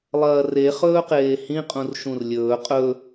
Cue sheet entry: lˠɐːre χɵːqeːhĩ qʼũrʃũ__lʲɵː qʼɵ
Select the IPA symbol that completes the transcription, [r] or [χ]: r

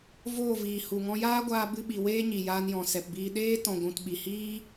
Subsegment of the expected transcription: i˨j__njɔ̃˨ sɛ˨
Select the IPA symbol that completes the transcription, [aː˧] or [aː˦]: aː˧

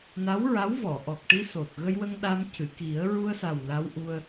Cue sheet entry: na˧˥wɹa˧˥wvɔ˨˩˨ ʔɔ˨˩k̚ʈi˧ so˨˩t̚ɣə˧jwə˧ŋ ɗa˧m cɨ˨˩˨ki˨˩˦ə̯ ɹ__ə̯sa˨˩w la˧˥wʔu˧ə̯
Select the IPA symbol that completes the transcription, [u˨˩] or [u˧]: u˧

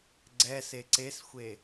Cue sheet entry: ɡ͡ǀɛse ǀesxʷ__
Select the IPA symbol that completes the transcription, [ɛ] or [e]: e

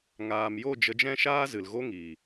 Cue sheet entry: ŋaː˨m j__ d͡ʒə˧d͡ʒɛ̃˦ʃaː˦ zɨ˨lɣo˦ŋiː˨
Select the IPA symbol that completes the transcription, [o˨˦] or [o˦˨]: o˦˨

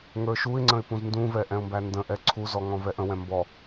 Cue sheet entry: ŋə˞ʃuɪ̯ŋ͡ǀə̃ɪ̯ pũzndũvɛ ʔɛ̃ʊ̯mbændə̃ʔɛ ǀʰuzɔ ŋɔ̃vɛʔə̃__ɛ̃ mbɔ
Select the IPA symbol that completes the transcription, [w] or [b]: w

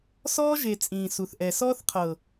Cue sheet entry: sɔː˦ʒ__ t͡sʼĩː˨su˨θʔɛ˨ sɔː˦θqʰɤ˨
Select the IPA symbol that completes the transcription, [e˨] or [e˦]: e˨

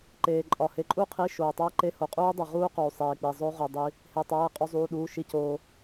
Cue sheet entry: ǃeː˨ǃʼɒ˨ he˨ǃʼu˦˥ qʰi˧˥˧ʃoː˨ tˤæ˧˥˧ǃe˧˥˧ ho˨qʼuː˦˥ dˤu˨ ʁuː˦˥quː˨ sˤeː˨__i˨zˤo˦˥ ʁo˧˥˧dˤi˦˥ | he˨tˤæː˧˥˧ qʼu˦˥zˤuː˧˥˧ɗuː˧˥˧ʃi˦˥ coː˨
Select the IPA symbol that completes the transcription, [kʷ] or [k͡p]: k͡p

